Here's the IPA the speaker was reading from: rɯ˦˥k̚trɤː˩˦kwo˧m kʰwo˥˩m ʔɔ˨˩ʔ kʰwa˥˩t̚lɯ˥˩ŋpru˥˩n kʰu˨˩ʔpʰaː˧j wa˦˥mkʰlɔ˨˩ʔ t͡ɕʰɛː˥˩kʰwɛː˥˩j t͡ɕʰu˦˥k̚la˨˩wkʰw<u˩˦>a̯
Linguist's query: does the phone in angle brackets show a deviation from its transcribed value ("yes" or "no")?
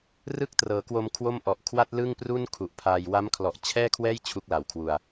yes